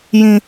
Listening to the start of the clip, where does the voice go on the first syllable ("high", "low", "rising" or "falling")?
low